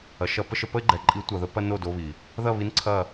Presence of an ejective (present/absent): present